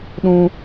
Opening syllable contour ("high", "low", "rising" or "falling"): high